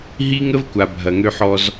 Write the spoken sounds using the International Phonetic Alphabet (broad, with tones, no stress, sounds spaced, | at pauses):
ɦ i˦ ŋ ə˦ v kʷ a˨ bʱ ɐ˨ ŋ ø˦ ħ ɔ˦ z